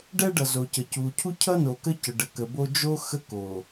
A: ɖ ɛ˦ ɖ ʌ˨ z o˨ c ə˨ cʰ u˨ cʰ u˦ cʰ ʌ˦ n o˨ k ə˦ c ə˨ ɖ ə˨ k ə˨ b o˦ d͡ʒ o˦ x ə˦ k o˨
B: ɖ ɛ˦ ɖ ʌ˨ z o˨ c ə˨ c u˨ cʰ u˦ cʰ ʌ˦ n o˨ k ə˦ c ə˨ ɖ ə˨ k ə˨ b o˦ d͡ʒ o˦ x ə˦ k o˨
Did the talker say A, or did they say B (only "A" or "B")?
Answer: B